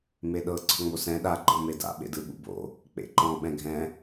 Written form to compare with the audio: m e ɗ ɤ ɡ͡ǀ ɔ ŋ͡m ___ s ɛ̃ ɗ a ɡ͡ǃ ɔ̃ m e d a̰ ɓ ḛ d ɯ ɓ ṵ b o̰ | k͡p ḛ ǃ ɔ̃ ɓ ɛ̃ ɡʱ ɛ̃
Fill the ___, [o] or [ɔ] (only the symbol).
o